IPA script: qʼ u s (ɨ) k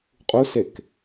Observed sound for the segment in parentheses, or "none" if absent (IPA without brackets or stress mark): e